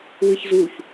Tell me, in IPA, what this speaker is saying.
w ɨ ç z u ç

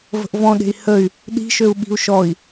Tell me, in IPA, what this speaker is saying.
v ə̤ ʔ v ɔ̃ ɗ e̤ i̯ h ə y̯ | ɗ i̤ ʃ ø u̯ ɓ i̤ u̯ ʃ ɔ i̯

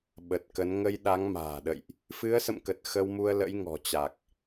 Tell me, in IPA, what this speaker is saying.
ɓ ə˨˩ t̚ k ə˨˦ n ŋ ə˧ j ɗ a˨˦ ŋ m a̤ː˨˩ ɗ ə̰˧˨ j ʔ | f ɨ˨˦ ə̯ s ə̰˧˨ m k ə˨˩ t̚ x ə˧ w m u˧ ə̯ l ə̰˧˥ j ŋ ɔ̤˨˩ t͡ɕ a˨˩ k̚

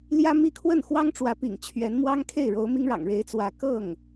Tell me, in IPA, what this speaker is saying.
l j ä˥ m i˥˧ kʰ w ə˥˩ n x w ɑ˥ ŋ ʈ͡ʂ w ä˧˥ p ḭ˨˩ ŋ t͡ɕʰ ɥ ɛ˧˥ n m w ɑ˥ ŋ kʰ e˥˩ ɪ̯ ɻ o˧˥ ʊ̯ m i˥ ŋ ɻ ɑ̰˨˩ ŋ ɻ e˧˥ ɪ̯ t͡s w ä˧˥ k ɤ˥˩ ŋ

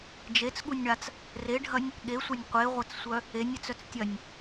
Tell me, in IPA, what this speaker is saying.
d͡ʒ e t͡s ɠ u nʲ ɳ a t͡s | r e ɖʱ ɐ nʲ | ɠ e sʷ ɐ nʲ qʷ e ʁʷ ɐ t͡s sʷ œ | e nʲ e t͡s œ t͡s tʲ ɐ nʲ

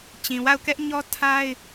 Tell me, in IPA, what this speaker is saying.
t͡ɕ ĩ˨ w a˦˨ ʊ̯ k ɛ˦ ʔ ɲ ɔ˦ tʰ a˦ ɪ̯

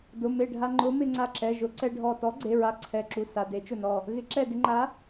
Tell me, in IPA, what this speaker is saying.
d ʊ˩˧˩ m e˧˩ ɖʱ a˧ ŋ͡ǃ ʊ˨˥ m ɪ˧ ŋ͡ǀ a˧˩ ǁ ɛ˩˧˩ ʒ ʊ˨˥ ǀ ɛ˧ ɖʱ ɔ˧˩ t ɔ˨˥ ɡ͡ǀ e˩˧˩ ɹ a˨˥ ǀʰ ɛ˩˧˩ ǁ u˩˧˩ s a˩˧˩ d e˨˥ t͡ʃ ʊ˧˩ n ɔ˧˩ | ɣ ɪ˨˥ ǁ ɛ˧˩ d ɪ˧ ŋ͡ǃ a˨˥

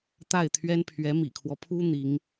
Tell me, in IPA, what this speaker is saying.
t̪ a˥˩ ɪ̯ t̪ʰ ɥ ɛ˥ n pʰ ɥ ɛ˧˥ m ḭ˨˩ kʰ w ɔ˦ pʰ u˥ n̪ i˧˥ ŋ

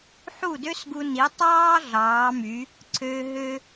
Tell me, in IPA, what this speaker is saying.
ħ u˥˩ d ø˥ s ɡ u˧ n i˩˥ tˤ ɑː˥ ɮ ɑː˩˥ m y˩˥ | ǀʰ øː˧ ɦ ø˥

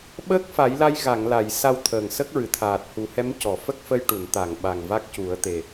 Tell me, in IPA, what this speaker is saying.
ɓ əː˦˥ k̚ f a˨˩˦ j l a˧ j ɣ a˨˩˨ ŋ l a˨˩˨ j s a˧ w t̪ʰ əː˨˩ ŋ s ə˦˥ k̚ ɹ ɨ˨˩ t̪ʰ aː˨˩ t̚ h u˨˩˦ h ɛ˧˥ m c ɔ˨˩˨ f ə˦˥ k̚ f ə˧ j ʈ u˨˩˨ n t̪ a˨˩˨ ŋ ɓ a˨˩ ŋ v a˦˥ k̚ c u˨˩˦ ə̯ t̪ e˨˩

